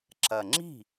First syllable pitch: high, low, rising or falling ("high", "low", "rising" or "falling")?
low